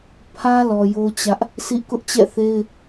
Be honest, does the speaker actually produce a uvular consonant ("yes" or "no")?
no